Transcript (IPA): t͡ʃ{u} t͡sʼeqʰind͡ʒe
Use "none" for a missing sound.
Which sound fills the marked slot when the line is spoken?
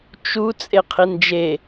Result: u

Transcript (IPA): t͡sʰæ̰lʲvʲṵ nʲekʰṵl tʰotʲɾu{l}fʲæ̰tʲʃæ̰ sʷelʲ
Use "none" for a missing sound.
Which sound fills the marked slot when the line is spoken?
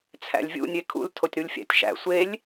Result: lʲ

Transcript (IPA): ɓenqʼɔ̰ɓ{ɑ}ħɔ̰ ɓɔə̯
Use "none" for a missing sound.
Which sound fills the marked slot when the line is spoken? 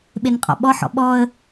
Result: ɔ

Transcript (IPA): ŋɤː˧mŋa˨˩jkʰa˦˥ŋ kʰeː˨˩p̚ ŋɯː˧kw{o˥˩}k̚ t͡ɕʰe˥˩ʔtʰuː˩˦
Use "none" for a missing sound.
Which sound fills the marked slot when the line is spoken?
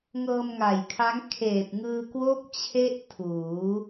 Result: o˥˩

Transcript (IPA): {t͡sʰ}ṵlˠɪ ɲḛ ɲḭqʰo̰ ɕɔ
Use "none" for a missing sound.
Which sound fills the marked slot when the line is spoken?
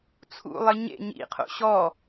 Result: t͡sʰ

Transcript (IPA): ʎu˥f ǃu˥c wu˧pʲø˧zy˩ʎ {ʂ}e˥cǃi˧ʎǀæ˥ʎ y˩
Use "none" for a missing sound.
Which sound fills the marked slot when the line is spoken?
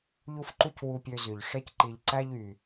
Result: ʂ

